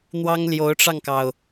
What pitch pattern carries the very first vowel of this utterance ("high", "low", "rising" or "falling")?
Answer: high